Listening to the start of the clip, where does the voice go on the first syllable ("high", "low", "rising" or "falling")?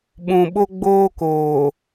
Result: low